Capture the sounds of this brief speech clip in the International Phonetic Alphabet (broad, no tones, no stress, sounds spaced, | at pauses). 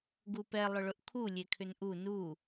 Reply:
ɡ u p ɛ lˠ ʏ ɭ ʊ ʔ kʰ u lʲ e kʰ ʏ n ʔ u n u